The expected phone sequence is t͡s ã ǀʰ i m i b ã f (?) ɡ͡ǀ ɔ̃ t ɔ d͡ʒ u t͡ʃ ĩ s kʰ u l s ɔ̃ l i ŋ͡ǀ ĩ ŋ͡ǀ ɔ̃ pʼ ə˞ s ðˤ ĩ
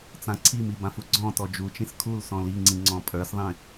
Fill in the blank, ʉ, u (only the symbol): u